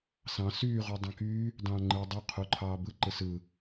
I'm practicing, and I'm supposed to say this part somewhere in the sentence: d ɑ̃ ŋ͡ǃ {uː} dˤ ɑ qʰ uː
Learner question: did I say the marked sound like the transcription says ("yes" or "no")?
no